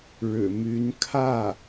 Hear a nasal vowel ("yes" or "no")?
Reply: no